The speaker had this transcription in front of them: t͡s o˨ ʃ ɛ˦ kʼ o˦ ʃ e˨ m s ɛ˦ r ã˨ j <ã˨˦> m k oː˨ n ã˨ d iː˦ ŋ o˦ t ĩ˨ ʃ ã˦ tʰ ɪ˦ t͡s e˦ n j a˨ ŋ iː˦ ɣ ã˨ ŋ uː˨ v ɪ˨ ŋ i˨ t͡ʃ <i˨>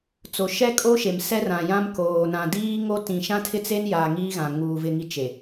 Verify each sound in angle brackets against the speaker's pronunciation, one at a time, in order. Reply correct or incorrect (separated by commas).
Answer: incorrect, incorrect